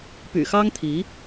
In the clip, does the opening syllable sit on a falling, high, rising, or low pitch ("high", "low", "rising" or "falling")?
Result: low